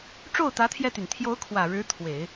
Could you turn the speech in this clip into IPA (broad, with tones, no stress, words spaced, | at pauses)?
ʈ͡ʂo˥˩ʊ̯t̪ä˧˥t̪ʰjɛ˧t̪y˩n t̪ʰjo˧˥ʊ̯ kʰwä˨˩ɻɻ̩˧˥ t̪ʰwe˨˩˦ɪ̯